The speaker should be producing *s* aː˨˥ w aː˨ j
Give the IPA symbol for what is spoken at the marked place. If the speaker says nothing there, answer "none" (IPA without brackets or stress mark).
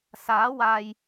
s